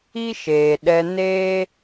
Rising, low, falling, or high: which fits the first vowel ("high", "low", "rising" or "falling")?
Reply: high